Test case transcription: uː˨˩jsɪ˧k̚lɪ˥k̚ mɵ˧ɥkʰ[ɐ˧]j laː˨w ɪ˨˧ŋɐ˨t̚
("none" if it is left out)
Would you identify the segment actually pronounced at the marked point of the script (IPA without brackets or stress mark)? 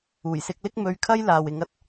ɐ˥